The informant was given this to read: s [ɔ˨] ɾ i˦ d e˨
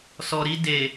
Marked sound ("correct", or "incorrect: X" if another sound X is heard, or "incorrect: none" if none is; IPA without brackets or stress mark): correct